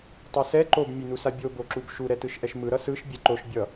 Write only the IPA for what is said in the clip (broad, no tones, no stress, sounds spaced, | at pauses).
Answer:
tˤ ʌ s ɛ ǃ o b mʲ e n u s a bʲ o b o ǁ u b ʃ u ɾ ɛ t ɯ ʃ ʔ ɛ ʃ m ɯ ɾ ʌ s ɯ ʃ bʲ ɛ ǃ o ʃ bʲ ʌ